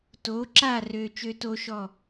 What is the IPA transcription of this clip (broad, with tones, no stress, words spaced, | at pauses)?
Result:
to˨˦ǁa˦˨ rø˧ t͡ʃø˦to˦ʃɔ˦˨